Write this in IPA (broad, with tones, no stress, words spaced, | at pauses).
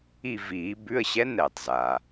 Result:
i˦˨viː˨˩˦ bʉ˧˥˧ə̯ɕɛ˧˥˧n ɛː˩tˤzaː˩